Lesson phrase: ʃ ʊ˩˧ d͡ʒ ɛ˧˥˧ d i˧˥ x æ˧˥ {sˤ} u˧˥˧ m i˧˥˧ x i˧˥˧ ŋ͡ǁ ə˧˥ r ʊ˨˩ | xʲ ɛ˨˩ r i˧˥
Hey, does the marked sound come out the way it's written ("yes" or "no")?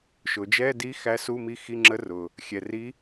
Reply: no